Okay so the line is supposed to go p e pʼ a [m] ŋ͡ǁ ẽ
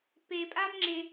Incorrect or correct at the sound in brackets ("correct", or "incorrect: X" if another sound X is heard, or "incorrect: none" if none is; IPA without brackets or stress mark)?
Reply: correct